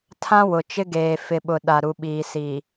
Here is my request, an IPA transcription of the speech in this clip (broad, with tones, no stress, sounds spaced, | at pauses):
tʰ ã˦ w ʊ˨ t͡ʃ ɪ˦ ɡ eː˨ f ɪ˨ ɓ ʊ˨ ɗ a˨ ɾ u˨ ɓ iː˨ s iː˨